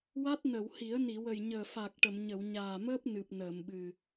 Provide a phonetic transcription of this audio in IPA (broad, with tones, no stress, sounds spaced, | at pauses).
w a˦˥ t̚ n ə˨˩˨ w h i˨˩˦ ə̯ n i˨˩˨ w ə˨˩ j ɲ əː˨˩ f a˨˩ k̚ ʈ ə˨˩˨ m ɲ ə˨˩˨ w ɲ aː˨˩ m əː˦˥ p̚ n ɨ˨˩ p̚ n əː˨˩˨ m ɓ ɨ˨˩